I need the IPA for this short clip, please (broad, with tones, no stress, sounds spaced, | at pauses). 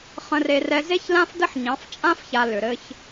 χ ə̃˦ r e˦ r ɛ˦ z e˦ ç l ã˦ f d ə˦ ħ ɲ ɑ̃˨˦ f t͡ʃʼ ã˦ f ç a˨ l ʏ˨ ɾ ɘ˦ ç